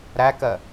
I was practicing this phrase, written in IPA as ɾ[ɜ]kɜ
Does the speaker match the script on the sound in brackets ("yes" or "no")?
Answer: no